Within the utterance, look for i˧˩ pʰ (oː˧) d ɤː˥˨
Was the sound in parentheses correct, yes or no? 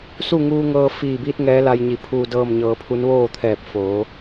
no